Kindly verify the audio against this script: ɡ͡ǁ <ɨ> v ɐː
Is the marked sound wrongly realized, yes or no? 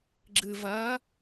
no